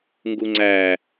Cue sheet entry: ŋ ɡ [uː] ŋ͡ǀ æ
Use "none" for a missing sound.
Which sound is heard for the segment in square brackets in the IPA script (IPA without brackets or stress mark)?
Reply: u